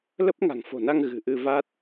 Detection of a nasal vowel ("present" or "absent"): absent